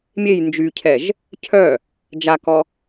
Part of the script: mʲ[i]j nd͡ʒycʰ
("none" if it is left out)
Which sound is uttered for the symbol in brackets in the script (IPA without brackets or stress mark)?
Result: e